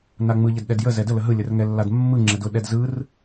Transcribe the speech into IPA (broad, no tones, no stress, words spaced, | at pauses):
naŋ͡mɯ ʎədɗɛdjə zɛdə ləɦɯ lʲərŋɛlːadmːɯ ŋ͡ǁɛdʊ ɗɛdzɯr